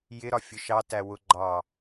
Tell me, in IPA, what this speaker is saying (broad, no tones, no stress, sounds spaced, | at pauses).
j ɪ ɾ ɒ fʲ ʊ ʃ ɑ t æ w ʊ ɡ͡ǃ ɑ